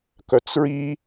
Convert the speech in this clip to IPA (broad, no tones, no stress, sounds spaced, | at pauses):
k œ t͡s ɹ i